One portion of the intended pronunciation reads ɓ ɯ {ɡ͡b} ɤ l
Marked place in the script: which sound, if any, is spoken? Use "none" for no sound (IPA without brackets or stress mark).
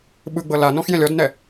ɡ͡b